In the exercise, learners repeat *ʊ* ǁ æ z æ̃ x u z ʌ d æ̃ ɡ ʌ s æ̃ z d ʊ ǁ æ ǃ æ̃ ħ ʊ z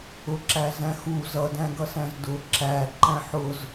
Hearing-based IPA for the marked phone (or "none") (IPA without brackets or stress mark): ʊ